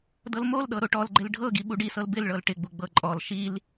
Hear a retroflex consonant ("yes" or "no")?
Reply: yes